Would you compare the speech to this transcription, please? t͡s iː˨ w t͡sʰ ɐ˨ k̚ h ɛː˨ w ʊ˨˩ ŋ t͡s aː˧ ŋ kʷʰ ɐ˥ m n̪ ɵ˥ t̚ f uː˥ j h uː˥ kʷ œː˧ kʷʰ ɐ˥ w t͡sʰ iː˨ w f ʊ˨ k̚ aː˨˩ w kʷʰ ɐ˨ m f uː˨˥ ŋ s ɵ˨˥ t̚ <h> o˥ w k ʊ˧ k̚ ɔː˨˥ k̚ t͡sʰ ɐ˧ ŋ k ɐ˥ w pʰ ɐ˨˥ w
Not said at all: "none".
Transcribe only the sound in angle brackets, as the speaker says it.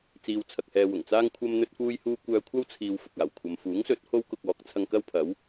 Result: h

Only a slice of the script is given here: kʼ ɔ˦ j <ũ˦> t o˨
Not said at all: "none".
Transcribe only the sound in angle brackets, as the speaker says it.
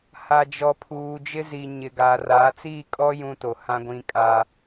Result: ũ˦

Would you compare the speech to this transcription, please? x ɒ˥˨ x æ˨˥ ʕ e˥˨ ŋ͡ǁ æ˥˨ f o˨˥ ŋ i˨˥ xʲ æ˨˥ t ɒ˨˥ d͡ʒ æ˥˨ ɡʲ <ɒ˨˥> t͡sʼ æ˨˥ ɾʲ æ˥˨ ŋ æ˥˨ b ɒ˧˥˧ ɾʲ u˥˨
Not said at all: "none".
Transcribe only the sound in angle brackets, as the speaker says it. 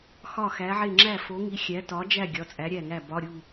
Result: ɒ˨˥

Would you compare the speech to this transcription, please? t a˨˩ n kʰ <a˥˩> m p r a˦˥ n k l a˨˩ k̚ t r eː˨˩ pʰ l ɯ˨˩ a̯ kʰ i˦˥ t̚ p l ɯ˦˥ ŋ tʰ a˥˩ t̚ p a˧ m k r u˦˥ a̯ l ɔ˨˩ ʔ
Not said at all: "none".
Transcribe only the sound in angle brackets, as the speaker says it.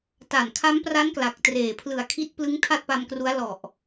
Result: a˦˥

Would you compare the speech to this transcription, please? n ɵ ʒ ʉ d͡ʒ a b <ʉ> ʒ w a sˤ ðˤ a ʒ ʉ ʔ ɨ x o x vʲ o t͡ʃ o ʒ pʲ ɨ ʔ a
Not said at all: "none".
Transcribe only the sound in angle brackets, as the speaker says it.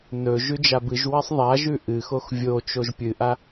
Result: ɨ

